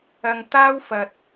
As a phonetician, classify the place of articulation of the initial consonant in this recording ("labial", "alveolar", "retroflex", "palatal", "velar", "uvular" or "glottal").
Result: velar